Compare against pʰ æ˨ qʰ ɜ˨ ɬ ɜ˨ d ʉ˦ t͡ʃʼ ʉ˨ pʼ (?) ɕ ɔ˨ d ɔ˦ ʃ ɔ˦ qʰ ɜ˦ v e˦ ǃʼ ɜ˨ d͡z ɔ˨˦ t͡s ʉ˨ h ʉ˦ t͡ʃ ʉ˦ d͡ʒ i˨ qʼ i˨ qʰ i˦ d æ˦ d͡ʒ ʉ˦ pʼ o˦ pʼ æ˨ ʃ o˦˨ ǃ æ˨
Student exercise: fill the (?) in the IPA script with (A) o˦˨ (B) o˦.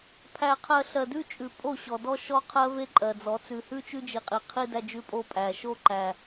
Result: A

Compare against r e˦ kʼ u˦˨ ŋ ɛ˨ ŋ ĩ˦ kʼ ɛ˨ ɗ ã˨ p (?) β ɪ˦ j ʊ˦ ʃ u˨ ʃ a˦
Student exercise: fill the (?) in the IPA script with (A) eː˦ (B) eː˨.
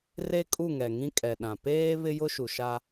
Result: A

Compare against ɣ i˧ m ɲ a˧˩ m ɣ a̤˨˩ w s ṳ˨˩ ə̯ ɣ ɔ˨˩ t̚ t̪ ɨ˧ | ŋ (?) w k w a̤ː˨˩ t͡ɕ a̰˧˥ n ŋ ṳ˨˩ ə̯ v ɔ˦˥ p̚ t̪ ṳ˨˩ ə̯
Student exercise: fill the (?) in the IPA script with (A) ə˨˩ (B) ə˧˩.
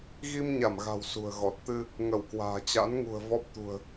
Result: B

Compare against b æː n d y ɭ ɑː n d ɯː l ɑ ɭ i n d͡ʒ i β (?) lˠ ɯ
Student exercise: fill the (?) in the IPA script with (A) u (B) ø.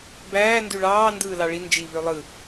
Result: B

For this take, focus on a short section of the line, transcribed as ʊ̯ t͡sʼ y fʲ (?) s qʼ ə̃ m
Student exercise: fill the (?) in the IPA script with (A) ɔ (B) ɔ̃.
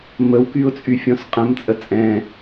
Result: B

